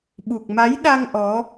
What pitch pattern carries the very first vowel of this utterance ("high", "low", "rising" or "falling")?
low